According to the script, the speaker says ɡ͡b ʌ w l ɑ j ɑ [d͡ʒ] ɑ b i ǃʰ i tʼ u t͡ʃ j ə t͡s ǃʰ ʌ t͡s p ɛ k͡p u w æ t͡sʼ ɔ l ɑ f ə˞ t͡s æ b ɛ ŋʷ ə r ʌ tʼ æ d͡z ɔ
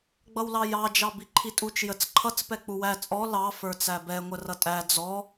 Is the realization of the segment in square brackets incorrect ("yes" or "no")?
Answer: no